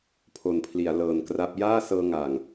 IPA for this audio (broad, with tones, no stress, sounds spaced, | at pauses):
pʰ o˨˩ n pʰ l i˩˦ a̯ l ɤː˨˩ n k r a˦˥ p̚ j aː˥˩ s ɤː˧ ŋ aː˨˩ ŋ